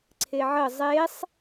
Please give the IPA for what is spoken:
ǀʰ e ʕ ə zˤ e sˤ

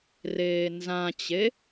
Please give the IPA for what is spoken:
r eː n z ã t͡ɕ e

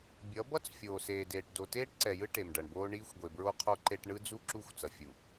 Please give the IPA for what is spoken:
bʲ ʌ˨˦ b ʌ˦ t͡s fʲ oː˨ s eː˨ d eː˨ ʈ d o˨ t eː˦ ʈ ǀ ɛ˨ j ɯ˦ ʈ e˨ m ɖ ʌ˨ ɳ b oː˦ ɳ iː˦ xʷ ɡʷ e˨ b ɹ o˦ qʰ o˦ ǃ e˦ ʈ ɳ ɯ˦ d͡z u˦ ǁ u˦˨ xʷ t͡s ʌ˨ fʲ u˨

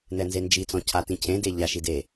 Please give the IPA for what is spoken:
n ɛ n z e n d͡ʒ i t͡s ɔ̃ cʰ a t ĩ cʰ ẽ d e ʎ a ʃ i d e

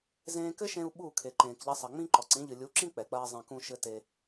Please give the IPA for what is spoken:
z ẽː˧ k ɘ˦ ʃ ẽ˧ u̯ ɓ u˦˨ kʰ e˨ ǃ ẽː˨ k ʎ ɐ˧ sˤ ɐ˨ ŋ͡m ĩ˦ ǃ ɔ˨ ǀ ĩ˨˦ ʎ ɨ˨ lʲ u˨˦ ǁ ĩ˦ k͡p ɛ˨ k͡p ɐː˦ zˤ ẽ˧ k ũ˦ ʃ ɘ˧ t e˧

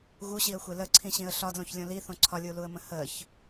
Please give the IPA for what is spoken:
ɣ u ɕ i ə̯ xʷ e l ə ǀʰ ĩ ɕ ĩ ə̯ ɬ ɒ d l õ ç lʲ õ l i θ õ ǀʰ ɒ lʲ u l u ə̯ m ə̃ h ə ç

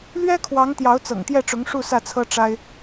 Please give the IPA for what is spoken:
l ɥ ɛ˥ kʰ w ɑ˧˥ ŋ t̪ j ɑ˧˥ ʊ̯ t͡s ɤ̰˨˩ ŋ t̪ j ɛ˥˩ ʈ͡ʂ ʊ˧˥ ŋ ʂ u˥˧ s ä˥˩ t͡sʰ ɤ˥ ʈ͡ʂ a˥ ɪ̯

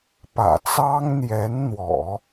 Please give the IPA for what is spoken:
p ä̰˨˩ t͡s ɑ˥ ŋ n̪ j ɛ˧˥ n n̪ w ɔ̰˨˩˦

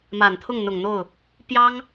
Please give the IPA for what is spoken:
m a˨˩ n t̪ʰ ʊ˥˩ ŋ n̪ ʊ˨˩ ŋ n̪ o˥˩ ʊ̯ | p j ɑ˥ ŋ

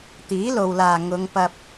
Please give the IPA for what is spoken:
t̪ iː˨˥ l o˨ w l aː˨ ŋ ʊ˨˧ ŋ p ɐ˧ p̚

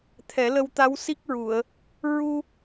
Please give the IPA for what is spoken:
t̪ʰ ɛ˨˩˦ l ə˧ w t̪ a˧˥ w s i˦˥ k̚ ɹ u˨˩˨ ə̯ | ɹ u˧

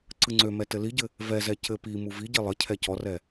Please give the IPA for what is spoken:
ǀ ɯ ŋ͡ǀ ø m ɛ t ɘ l i ɟ ɘ | v ɛ z ɛ c ɘ p i m u v i ɟ i lˠ ɘ cʰ ɛ c ɔ r ɛ

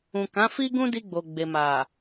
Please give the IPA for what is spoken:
ũ˨ k ã˨˦ f i˦ ɡ ũ˦ d i˧ ɡ͡b o˨ ɡ͡b e˨ m a˨

